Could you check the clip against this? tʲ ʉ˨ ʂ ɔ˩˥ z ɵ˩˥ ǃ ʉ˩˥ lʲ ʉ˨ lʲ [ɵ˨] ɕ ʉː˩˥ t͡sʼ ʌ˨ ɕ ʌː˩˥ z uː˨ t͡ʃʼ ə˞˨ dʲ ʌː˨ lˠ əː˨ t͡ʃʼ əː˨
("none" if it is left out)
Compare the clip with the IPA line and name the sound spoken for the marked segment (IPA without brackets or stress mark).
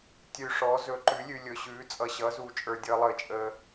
ɵ˨